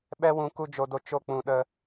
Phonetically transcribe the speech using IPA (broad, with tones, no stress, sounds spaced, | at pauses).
ɓ ɛ˦ w ũ˧ k u˦ d͡ʒ o˧ d o˧ t͡ʃ o˦ k͡p ũ˧ ɗ ə˦